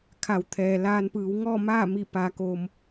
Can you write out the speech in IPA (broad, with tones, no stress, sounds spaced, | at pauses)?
kʰ a˩˧ w t̪ʰ ɛː˩ l aː˧ n p ɯː˩˧ w ŋ ɔː˥˨ m aː˥˨ m i˧˩ p a˩˧ k oː˩ m